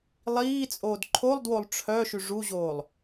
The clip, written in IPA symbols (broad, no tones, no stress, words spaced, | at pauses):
lˠiːt͡sʼoːd ǃʰolˠdwolˠ ʈ͡ʂʰœʃy ʐuʑoːlˠ